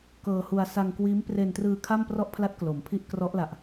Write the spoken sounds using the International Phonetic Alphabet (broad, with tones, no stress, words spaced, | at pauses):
kɤː˧hu˧a̯ sa˧ŋ kwiː˦˥m pre˧ntrɯː˧ kʰa˥˩mprɔ˥˩ʔpʰla˥˩t̚ klo˨˩mpʰi˥˩ʔ krɔ˦˥ʔla˨˩ʔ